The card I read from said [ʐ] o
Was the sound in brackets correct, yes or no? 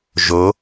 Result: no